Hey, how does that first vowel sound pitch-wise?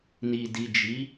low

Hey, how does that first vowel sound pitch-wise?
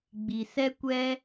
low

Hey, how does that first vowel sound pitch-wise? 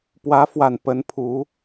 rising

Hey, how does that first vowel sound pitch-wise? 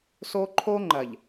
high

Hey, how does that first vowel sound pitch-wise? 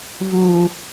low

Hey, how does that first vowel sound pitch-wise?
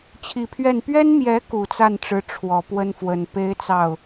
low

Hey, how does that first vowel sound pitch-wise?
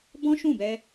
high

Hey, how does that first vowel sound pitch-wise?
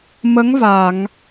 rising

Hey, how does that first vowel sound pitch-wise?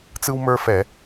high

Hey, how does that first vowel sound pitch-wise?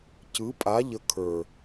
rising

